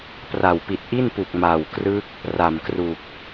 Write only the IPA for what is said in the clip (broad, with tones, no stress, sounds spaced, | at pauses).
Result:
p r a˨˩ w p i˨˩ t̚ ʔ i˥˩ n p u˨˩ k̚ m a˨˩ w k r ɯ˦˥ k̚ | r a˨˩ m k r u˨˩ k̚